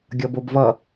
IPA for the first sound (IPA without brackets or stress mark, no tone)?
ɡʲ